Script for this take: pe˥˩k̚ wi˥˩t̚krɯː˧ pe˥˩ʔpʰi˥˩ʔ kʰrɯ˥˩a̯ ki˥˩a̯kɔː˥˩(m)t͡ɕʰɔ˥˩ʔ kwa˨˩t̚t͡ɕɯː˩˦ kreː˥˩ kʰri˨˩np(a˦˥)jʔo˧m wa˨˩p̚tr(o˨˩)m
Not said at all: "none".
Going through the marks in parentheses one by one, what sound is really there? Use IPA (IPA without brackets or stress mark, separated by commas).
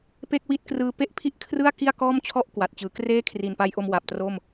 m, a˧, o˥˩